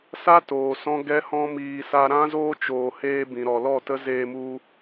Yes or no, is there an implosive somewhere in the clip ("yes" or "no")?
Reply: no